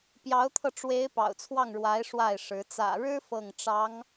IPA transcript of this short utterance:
p j ɑ˧˥ ʊ̯ t̪ʰ ɤ˧ ʈ͡ʂ w e˧˥ ɪ̯ p ɑ̰˨˩ ʊ̯ t͡sʰ w ɑ˥˩ ŋ ɻ w a˧˥ ɪ̯ ʂ w a˥˩ ɪ̯ ʂ ɻ̩˧˥ t͡s ä̰˨˩ ɻ ɻ̩˥ f ɤ˥˩ ŋ ʈ͡ʂ ɑ˧˥ ŋ

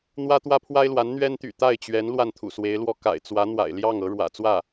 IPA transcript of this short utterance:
n̪ w ä˥ t̪ w ä˥ pʰ w a˥ ɪ̯ l w a˧˥ n n̪ ɥ ɛ˥ n t̪ y̰˨˩ t̪ a˥˩ ɪ̯ t͡ɕ ɥ ɛ˧˥ n l w a˥˩ n t̪ʰ ṵ˨˩ s w e˧˥ ɪ̯ l w ɔ˥ k a̰˨˩ ɪ̯ t͡s w ä˧˥ n̪ w a̰˨˩ ɪ̯ l j ɑ˥˩ ŋ ɤ˧˥ ɻ w ä̰˨˩ t͡s w ä˥˩

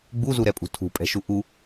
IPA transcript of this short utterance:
ɡ͡b u z u ɾ ɛ pʼ ṳ tʰ ṳ pʼ ɛ̤ ʃ u ʔ u

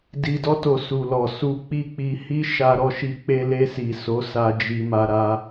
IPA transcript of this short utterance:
d i˨ d ɔ˧ t o˨ s u˨ l ɔ˨ s u˧ k͡p i˦ k͡p i˧ h i˦ ʃ a˧ ɾ ɔ˧ ʃ i˧ k͡p e˧ l e˧ s i˨ s o˨˦ s a˧ d͡ʒ i˧ m a˧ ɾ a˧

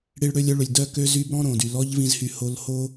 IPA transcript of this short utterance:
ɽ i˦ ɭ ɽ ø˦ lʲ œ˦ ɭ ø˧ lʲ d œ˧ k ø˧ z y˦ b ɾ ɔ̃˦ ɾ õ˨ d y˨ l ɔ˦ ʎ v ĩ˧ z h y˧ h o˧ l h o˦

